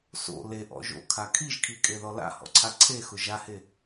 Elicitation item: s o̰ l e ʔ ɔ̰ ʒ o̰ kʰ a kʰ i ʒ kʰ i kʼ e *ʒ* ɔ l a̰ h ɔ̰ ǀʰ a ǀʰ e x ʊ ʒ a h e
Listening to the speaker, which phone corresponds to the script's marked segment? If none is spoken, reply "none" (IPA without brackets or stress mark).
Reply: ð